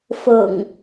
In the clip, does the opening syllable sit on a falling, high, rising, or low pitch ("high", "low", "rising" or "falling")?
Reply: low